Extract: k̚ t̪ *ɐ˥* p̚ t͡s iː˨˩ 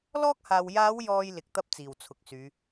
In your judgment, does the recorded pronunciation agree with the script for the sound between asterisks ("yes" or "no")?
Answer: yes